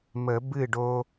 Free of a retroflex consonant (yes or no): no